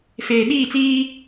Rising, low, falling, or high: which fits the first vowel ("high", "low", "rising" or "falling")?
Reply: low